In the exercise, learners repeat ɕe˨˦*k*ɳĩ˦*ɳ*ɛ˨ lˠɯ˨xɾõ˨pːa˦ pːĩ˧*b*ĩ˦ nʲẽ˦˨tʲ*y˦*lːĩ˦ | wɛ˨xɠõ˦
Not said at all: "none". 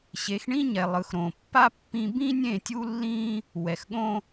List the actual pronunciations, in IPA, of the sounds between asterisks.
x, ɲ, b, u˦

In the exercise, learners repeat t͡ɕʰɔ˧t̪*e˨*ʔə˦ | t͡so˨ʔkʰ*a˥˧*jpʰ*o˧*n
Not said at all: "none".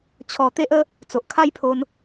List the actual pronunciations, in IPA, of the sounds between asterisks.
e˦, a˦, o˧

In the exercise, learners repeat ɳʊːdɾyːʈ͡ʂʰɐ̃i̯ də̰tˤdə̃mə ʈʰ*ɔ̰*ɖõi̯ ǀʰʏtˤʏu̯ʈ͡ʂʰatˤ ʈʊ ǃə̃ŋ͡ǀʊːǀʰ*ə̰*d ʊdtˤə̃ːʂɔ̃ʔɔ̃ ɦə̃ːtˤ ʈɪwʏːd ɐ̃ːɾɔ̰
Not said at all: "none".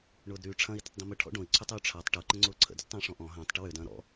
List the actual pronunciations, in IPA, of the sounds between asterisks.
ɔ̰, ə̰

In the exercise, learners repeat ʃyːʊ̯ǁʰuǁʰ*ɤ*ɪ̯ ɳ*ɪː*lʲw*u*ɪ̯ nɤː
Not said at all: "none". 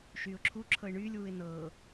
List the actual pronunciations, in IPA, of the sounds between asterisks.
ɤ, yː, u

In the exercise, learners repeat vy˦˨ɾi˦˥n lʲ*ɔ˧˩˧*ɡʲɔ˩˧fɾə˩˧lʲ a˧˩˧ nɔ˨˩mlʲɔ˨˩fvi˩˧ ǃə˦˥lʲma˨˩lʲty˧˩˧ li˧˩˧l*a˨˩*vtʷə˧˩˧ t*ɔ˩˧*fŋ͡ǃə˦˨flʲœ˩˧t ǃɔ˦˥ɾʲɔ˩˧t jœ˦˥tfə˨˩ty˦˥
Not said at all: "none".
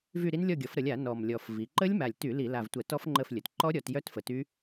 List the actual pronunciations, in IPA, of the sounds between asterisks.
ɔ˦˨, a˨˩, ɔ˦˥

